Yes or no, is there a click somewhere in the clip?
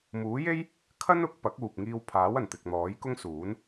no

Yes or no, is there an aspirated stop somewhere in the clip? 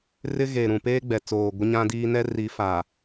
no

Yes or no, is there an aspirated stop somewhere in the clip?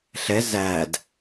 no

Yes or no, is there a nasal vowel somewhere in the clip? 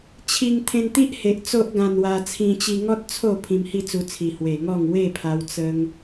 yes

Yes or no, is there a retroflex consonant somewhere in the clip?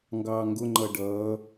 yes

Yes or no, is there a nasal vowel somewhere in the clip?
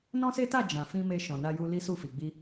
yes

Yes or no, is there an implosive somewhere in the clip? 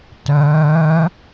no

